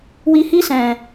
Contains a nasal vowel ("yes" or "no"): yes